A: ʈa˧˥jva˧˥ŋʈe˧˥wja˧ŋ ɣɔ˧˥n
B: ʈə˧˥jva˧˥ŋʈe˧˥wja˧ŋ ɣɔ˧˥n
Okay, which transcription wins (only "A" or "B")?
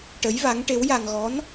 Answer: B